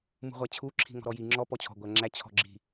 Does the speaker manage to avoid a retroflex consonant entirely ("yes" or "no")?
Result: yes